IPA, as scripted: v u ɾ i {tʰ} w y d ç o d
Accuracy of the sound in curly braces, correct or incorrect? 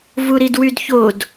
incorrect: d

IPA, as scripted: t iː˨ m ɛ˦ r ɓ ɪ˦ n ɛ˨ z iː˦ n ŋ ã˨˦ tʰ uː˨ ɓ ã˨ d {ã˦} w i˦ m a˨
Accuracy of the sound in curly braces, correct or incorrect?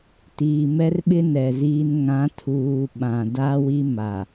incorrect: a˦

